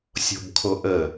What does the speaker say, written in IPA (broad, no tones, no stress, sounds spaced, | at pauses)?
sʲ o̤ b kʰ o ʔ ə